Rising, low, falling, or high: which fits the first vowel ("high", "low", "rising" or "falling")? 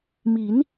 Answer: rising